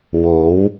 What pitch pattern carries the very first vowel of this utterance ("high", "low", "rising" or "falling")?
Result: rising